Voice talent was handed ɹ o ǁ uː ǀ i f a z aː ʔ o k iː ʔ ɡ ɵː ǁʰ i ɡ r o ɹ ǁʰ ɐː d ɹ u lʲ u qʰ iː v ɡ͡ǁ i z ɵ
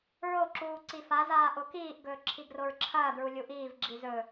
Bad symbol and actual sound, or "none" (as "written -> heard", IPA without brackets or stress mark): qʰ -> ʔ